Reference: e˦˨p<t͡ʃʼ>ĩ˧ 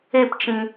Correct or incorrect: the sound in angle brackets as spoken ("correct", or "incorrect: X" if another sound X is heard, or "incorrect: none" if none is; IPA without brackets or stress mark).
incorrect: t͡ʃ